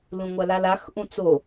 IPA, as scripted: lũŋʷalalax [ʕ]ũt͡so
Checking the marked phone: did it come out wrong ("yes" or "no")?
yes